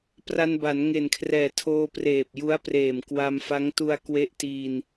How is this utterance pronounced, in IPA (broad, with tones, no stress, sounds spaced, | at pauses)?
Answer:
p r a˧ n b a˩˦ n ŋ e˨˩ n kʰ r ɛː˨˩ tʰ oː˧ p r eː˨˩ p̚ j u˦˥ a̯ p r eː˨˩ m k w a˧ m f a˦˥ ŋ t u˧ a̯ k w e˥˩ ʔ t iː˧ n